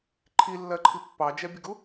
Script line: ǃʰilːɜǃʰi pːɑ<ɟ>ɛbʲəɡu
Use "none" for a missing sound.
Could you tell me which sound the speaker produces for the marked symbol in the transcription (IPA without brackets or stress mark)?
d͡ʒ